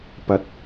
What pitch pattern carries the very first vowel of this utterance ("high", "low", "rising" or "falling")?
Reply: low